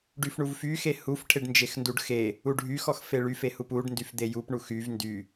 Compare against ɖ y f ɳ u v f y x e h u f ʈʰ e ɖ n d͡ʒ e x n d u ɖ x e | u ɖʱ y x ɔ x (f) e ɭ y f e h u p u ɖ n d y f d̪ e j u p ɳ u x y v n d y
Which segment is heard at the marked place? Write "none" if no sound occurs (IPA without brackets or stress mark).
f